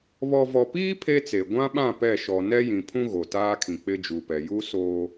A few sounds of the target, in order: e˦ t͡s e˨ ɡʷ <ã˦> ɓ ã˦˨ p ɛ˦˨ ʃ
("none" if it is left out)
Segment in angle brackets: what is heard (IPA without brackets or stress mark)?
ã˦